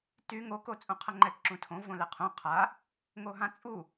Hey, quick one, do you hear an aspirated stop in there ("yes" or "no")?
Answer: yes